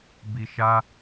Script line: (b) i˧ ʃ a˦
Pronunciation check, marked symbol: correct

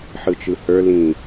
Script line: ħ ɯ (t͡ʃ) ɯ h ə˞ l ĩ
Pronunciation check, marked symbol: correct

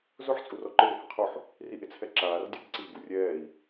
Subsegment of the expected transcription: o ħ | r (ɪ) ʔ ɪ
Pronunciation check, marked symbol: incorrect: i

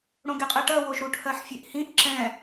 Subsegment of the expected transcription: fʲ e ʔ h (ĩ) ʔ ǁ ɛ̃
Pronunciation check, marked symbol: correct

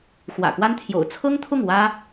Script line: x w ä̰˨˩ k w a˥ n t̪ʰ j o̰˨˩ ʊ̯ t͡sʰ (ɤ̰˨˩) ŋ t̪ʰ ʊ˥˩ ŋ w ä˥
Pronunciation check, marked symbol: incorrect: ɤ˥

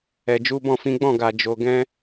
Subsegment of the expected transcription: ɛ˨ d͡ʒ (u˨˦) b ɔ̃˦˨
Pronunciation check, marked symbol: correct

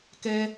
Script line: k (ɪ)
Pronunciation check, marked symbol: incorrect: ɛ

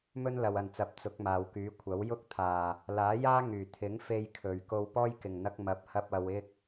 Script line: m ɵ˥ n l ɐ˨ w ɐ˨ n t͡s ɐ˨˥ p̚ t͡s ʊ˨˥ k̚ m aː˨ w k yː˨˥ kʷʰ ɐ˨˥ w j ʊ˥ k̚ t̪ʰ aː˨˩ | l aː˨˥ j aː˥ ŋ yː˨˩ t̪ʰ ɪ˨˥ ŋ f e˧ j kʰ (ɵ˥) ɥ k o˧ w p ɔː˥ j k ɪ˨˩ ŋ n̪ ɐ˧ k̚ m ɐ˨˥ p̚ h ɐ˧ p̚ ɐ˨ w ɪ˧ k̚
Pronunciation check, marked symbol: incorrect: ɵ˨˩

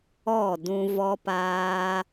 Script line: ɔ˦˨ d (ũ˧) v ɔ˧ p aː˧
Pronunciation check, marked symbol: correct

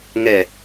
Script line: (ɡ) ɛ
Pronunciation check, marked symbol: incorrect: ŋ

